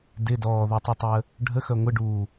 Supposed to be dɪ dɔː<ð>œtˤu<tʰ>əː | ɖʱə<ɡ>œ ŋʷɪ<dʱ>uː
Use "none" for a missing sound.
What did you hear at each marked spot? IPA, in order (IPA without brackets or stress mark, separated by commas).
ð, tˤ, x, ɖ